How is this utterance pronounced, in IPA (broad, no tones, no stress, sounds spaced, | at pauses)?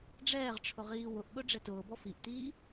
ɖ͡ʐ ɛː ʁ ʈ͡ʂʰ ʊ ʁ iː w ʊ ʔ ɠ ʊ ɖ͡ʐ ɛ t ʊː b ɔ f i ʔ t iː